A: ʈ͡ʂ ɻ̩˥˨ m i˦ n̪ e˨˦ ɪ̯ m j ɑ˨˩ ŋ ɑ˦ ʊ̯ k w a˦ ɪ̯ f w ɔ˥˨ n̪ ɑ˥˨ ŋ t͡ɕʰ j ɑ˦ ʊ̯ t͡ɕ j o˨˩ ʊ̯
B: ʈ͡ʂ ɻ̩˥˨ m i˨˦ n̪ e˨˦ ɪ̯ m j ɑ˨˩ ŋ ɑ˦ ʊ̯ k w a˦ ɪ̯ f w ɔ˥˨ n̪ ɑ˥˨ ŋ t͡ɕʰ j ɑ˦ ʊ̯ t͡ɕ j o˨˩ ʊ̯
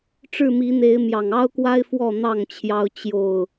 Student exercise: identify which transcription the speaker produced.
B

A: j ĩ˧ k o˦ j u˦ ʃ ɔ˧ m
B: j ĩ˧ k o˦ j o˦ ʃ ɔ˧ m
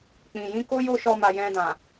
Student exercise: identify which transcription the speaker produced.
B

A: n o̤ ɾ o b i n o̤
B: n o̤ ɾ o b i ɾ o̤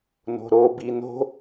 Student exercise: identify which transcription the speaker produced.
A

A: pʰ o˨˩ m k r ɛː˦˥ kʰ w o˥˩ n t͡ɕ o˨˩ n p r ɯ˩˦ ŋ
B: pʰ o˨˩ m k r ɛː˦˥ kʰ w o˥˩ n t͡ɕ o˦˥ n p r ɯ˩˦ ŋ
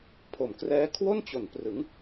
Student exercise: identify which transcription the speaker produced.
A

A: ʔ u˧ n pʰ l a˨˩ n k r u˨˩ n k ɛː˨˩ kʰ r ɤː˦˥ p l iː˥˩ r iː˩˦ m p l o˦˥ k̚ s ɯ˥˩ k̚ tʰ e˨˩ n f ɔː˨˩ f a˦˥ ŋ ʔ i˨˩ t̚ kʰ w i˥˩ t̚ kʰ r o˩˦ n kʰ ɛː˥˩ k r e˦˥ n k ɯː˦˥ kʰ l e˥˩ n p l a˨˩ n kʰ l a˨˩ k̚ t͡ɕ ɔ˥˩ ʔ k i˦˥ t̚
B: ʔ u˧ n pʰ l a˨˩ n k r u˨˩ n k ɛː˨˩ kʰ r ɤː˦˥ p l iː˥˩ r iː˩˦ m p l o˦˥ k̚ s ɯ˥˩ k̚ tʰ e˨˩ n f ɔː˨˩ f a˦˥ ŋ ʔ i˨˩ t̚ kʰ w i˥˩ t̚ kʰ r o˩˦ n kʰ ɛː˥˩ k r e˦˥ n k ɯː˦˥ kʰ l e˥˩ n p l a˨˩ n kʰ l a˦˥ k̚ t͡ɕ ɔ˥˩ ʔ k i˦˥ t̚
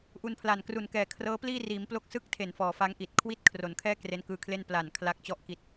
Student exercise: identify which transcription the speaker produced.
B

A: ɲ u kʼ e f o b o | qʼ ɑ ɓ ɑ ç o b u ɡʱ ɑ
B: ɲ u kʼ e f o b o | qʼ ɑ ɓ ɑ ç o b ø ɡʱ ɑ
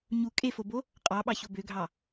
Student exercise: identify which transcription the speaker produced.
B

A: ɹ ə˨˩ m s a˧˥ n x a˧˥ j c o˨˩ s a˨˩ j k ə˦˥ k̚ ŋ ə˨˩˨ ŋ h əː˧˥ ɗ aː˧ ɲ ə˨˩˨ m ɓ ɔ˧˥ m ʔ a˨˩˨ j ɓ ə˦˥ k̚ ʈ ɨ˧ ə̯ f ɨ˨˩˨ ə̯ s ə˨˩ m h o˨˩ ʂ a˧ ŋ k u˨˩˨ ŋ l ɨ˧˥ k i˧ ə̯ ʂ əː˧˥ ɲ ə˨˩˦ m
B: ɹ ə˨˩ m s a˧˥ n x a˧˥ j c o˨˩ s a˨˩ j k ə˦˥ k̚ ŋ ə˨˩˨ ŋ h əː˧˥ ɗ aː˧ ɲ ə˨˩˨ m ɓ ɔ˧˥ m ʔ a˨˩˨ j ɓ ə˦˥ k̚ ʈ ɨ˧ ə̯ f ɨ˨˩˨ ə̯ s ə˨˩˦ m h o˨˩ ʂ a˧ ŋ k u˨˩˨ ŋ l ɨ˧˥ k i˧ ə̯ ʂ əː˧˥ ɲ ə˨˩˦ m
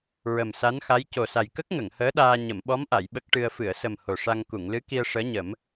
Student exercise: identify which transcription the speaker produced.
A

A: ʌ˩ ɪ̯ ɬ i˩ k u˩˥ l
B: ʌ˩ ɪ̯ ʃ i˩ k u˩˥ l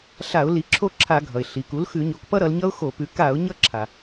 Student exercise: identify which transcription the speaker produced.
A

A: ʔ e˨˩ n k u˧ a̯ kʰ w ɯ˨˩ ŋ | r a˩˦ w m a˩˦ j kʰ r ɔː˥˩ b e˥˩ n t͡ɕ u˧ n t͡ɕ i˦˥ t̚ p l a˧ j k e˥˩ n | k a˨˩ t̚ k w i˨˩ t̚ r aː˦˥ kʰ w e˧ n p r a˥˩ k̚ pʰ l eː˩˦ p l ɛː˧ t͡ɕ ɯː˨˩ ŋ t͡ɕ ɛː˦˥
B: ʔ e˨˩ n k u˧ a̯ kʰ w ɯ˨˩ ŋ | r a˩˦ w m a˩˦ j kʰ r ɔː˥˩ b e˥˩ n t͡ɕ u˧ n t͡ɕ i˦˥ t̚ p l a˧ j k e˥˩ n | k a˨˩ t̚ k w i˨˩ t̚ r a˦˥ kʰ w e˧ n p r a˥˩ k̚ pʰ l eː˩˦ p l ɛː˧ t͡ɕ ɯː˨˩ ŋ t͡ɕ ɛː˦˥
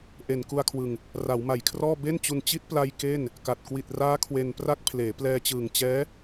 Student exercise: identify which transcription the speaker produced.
A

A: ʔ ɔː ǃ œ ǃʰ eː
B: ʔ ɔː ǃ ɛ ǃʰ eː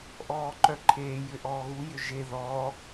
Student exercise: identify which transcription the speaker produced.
A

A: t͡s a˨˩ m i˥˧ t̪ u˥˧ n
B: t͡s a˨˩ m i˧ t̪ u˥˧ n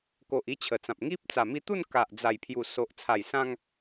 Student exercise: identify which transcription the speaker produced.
B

